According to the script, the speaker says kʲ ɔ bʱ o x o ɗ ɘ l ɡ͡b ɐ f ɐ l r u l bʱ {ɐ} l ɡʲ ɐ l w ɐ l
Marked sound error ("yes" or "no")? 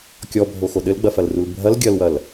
no